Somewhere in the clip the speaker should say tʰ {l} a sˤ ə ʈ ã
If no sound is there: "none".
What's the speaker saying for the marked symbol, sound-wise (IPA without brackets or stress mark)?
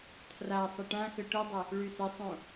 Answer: r